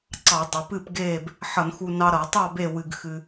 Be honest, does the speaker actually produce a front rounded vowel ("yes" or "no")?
no